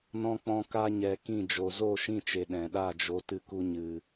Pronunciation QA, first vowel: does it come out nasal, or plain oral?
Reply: nasal